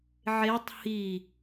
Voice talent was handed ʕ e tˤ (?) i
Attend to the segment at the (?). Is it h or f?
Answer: h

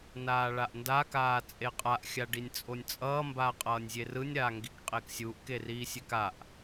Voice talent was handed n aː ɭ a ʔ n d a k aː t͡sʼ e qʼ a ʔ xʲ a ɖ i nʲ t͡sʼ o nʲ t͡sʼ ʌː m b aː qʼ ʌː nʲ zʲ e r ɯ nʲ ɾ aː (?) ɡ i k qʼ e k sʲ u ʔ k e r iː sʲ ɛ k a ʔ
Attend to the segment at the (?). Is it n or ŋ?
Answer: ŋ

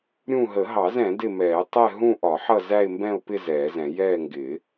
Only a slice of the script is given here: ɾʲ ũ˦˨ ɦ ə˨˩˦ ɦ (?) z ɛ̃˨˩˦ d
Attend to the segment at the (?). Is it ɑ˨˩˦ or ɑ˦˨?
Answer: ɑ˨˩˦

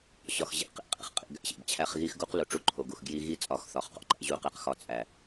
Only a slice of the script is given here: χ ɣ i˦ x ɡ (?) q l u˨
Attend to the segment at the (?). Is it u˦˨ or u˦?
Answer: u˦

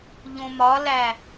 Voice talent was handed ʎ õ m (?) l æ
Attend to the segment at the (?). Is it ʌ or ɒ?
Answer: ɒ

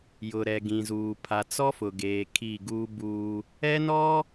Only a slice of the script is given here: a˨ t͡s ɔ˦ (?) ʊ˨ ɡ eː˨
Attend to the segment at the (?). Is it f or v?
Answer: f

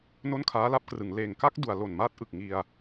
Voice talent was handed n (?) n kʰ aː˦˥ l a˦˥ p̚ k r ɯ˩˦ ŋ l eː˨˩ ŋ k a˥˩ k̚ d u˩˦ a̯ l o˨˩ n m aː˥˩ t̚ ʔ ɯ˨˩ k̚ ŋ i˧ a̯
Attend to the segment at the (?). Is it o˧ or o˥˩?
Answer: o˥˩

